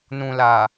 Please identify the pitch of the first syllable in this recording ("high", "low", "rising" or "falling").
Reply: low